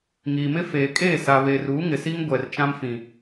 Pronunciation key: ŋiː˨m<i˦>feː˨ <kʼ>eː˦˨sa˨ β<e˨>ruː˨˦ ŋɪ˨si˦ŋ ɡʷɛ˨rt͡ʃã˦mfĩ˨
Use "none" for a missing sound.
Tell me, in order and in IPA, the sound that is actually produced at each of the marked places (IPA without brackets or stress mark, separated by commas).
ɪ˦, kʼ, e˨